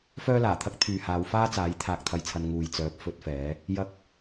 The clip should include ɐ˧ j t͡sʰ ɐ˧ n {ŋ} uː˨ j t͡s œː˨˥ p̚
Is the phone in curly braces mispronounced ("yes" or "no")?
no